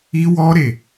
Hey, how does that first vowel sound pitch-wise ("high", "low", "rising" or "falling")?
high